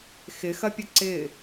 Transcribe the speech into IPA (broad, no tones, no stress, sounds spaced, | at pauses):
x ɪ x ɐ pʲ ə ǀ ɪ